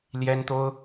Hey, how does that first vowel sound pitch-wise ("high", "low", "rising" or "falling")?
high